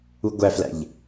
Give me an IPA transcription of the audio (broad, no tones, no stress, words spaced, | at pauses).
uɡʷæflæ̰ʎ